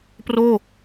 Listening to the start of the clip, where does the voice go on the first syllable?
falling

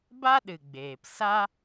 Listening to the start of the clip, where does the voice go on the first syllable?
high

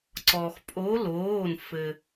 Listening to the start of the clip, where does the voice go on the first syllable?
low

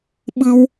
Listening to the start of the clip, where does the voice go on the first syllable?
high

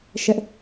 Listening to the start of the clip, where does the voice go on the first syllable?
high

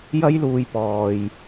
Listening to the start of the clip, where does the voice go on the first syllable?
high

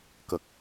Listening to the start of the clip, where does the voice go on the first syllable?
low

